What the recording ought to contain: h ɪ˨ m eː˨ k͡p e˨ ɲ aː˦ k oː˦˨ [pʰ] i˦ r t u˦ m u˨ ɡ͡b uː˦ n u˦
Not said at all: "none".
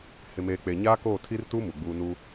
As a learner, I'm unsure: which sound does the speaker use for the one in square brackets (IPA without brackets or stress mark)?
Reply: tʰ